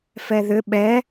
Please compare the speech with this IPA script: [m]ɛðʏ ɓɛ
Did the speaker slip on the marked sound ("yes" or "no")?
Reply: yes